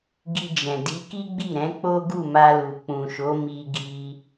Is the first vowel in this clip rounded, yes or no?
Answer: no